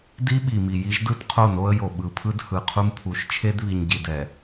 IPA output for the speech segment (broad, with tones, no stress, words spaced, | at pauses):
di˦ɓi˨mi˨ ji˦ʒdɯ˦tqʰo˦˨no˦ə̯ jo˨ ɓɯ˨pʰɯ˦d hɯ˨qʰu˦mpʰu˨˦ʃ t͡ʃʰe˦dβi˨ɲɟi˨dɛ˨